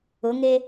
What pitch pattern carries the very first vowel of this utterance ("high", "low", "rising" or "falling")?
rising